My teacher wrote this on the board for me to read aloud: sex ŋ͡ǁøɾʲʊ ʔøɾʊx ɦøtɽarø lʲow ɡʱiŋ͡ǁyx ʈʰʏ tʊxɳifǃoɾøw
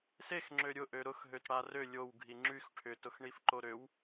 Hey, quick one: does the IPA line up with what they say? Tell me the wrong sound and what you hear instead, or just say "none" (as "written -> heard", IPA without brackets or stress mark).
none